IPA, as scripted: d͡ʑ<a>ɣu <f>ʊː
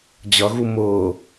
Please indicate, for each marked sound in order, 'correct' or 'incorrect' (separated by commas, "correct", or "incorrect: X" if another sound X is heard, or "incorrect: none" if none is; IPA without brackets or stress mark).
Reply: incorrect: ʌ, incorrect: m